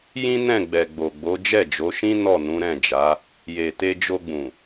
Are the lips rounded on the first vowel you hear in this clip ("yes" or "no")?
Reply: no